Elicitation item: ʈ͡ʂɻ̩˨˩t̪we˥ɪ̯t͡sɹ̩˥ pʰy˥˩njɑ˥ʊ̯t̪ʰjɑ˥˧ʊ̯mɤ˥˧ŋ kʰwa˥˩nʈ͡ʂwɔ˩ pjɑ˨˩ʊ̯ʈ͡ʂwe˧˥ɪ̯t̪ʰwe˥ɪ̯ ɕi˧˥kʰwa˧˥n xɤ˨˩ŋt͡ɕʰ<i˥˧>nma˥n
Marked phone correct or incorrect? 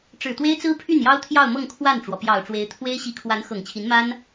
incorrect: i˧˥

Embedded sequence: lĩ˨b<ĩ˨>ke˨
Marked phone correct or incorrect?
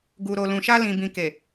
correct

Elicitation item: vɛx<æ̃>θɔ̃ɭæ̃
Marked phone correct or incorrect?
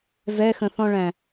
incorrect: ə̃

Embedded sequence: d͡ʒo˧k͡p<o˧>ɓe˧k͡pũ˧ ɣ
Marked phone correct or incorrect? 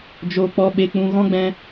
incorrect: ɔ˧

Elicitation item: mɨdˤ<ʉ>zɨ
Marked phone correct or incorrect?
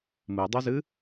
correct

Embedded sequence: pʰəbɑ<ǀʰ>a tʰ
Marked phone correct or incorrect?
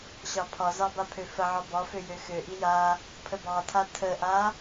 incorrect: tʰ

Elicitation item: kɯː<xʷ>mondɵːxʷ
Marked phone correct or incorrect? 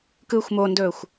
correct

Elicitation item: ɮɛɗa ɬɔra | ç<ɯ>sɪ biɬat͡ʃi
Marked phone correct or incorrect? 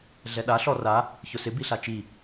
incorrect: ʊ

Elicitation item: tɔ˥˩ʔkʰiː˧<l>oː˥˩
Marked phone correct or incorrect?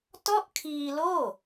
correct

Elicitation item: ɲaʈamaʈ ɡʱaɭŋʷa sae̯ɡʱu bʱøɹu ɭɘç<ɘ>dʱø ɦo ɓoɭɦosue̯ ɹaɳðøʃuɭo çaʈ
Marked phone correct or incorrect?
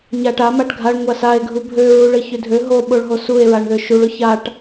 incorrect: ø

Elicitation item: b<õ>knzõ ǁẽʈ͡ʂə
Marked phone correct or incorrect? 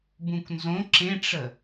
incorrect: ũ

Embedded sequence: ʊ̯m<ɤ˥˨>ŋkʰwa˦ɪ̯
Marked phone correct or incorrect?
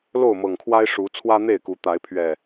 incorrect: ɤ˨˩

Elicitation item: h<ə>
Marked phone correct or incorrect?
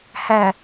incorrect: æ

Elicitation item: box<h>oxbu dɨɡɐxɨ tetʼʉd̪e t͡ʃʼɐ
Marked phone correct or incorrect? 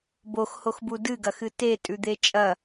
correct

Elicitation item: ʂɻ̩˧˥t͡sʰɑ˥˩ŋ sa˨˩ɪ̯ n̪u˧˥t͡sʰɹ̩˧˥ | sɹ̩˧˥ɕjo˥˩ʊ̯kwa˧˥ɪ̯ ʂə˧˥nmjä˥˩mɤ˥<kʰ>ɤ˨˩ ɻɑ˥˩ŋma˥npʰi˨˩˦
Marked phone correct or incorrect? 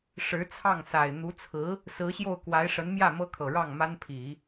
correct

